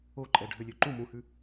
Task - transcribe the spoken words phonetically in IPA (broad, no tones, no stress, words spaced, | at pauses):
oǃʼɛ ɖʱølʲøǃũ mũhʉ